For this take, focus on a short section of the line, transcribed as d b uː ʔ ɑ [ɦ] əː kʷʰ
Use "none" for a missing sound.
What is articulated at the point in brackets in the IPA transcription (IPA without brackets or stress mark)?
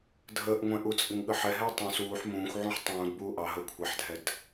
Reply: ɦ